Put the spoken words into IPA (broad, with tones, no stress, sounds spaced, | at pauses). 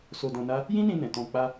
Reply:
s o˧ d ɔ̃˧ n a˦ | j ĩ˦ n ĩ˧ n ɛ̃˨ t ɔ̃˧ k͡p a˦